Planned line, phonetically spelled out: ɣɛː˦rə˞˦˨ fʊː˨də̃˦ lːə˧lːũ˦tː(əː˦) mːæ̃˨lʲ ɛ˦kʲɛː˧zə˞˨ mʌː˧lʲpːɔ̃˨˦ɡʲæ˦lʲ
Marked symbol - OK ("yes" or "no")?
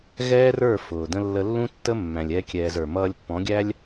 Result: no